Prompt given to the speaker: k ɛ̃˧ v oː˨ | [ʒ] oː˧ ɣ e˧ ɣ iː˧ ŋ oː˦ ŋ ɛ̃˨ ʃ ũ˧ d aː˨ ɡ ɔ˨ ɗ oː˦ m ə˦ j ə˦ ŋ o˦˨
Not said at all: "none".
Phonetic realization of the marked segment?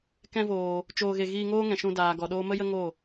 t͡ʃ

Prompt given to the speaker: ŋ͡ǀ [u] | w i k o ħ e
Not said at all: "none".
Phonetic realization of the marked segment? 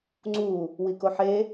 u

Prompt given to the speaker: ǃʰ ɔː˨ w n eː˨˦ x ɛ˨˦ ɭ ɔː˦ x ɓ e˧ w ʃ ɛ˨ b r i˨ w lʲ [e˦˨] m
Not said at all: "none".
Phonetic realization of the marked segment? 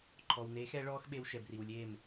e˦˨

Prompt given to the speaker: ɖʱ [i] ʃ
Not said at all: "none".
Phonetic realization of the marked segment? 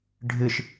ɨ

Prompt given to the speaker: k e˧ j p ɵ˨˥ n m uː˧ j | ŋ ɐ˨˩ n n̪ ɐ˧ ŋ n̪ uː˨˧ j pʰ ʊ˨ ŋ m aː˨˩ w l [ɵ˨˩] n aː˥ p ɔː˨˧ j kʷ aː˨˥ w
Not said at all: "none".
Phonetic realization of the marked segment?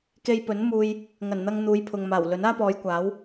ɵ˨˥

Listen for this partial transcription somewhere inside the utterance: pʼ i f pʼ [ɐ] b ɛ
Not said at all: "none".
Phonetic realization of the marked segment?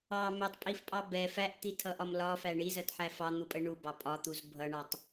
ɑ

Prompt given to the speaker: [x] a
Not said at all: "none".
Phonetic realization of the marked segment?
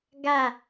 ɡ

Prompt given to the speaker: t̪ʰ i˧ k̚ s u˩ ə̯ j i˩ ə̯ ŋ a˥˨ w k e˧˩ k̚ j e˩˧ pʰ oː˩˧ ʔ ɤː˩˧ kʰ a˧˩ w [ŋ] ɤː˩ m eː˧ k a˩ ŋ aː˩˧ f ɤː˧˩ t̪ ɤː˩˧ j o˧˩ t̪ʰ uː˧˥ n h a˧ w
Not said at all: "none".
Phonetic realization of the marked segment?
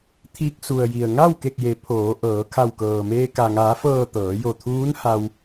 k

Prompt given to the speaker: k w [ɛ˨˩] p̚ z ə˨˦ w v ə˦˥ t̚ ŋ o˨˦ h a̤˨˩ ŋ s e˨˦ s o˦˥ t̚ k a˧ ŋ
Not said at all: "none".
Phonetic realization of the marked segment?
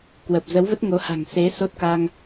ə˨˩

